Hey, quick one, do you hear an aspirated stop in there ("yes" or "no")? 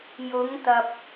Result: no